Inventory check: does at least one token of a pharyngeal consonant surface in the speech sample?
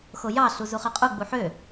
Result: yes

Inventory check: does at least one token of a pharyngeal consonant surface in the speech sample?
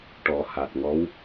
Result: no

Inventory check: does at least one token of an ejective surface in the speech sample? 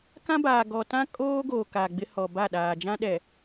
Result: yes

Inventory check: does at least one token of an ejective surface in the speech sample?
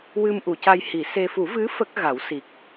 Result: no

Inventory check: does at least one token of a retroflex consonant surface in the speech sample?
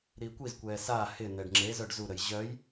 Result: yes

